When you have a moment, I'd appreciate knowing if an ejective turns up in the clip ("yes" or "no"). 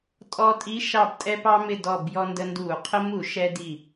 yes